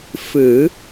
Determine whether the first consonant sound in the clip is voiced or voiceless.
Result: voiceless